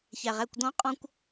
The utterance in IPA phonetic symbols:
çæ˨ʁæ˦˨kʷ dɔ̃˦qʼɔ̃˦kʷ

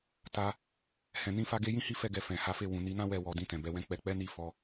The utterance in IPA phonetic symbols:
ta˧ | hɛ̃˨ nĩ˧fa˧ɡe˧jĩ˦ hi˦fɛ˧ɡɛ˨ fɛ̃˨ha˨˦fe˦˨ wũ˨ni˧nã˦ wɛ˧ wɔ˨dĩ˧tɛ̃˨ bɛ˨˦wɛ̃˦k͡pɛ˧ k͡pɛ˦ni˦˨ fɔ˨˦

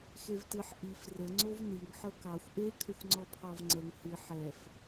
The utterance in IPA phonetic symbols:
xevtɨħ ʔif rəŋ͡ǀov niŋ ħɤkɑxʷ ʔe kʰəxʷŋ͡ǀɔpʰɑvŋ͡ǀəŋ hɨ ħɛf

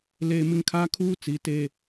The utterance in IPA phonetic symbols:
leː˦ mɪ˦ŋkʰaː˦ kʰuː˦ t͡si˨˦teː˦

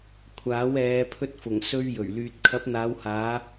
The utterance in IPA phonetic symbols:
kʷʰaː˨˥wɛː˨˧ pʰɵ˧t̚fʊ˨˩ŋ sɵ˧ɥ jɵ˨˩ɥlyː˨t̚ kʰɐ˨˥p̚n̪aː˨˧whaː˨˧

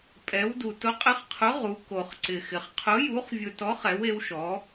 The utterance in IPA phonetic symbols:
pʼɛ˧˥wdu˧ tʊ˧˥qʼɪ˧˥χqʰʊ˧˥ ʁu˧˥ko˧χǀɪ˧xɪ˧χ qʰʊ˧˥ju˧˥χvʲʊ˧tɔ˧˥χ ɛ˧˥we˧˥wʃɔ˧˥

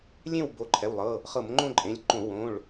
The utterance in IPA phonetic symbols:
lʲẽ˥˨w bo˩˧˩ǃʰɛ˩˧˩wlˠɤ˩˧˩ | χɤ˧˩˧mŋ͡ǃõ˥˨ǃʼẽ˩˧˩lʲǃõ˧˩˧ wõ˩˧˩ɭ

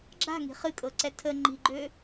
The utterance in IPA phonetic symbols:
ɡ͡ǁa̤ŋi̤ χɨkʼɤǀɛ tʰə ŋ͡ǃi̤ɡ͡ǃø

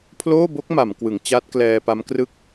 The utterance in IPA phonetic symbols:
pʰloː˥˩bo˦˥k̚ ma˩˦mkwɯ˩˦ŋt͡ɕaː˦˥t̚ klɛː˧pa˦˥mkrɯ˥˩k̚

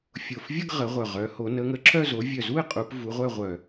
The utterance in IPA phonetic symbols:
fʲo˨˩fvʲə˥˧ɡ ʁə˨˦ʁʷœ˨˩ʁœ˨˦ho˨˦ nə˨˦ŋə˨˦ǁʰœ˥˧zo˨˦ vʲœ˨˩zu˥˧ɪ̯ qʼu˨˦pvu˨˦ʁʷœ˥˧ ʁʷœ˨˩

